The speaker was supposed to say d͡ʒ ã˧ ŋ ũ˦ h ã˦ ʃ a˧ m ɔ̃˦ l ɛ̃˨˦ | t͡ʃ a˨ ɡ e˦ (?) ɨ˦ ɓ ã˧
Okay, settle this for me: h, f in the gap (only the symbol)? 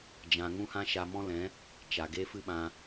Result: f